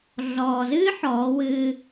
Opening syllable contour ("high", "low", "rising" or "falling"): low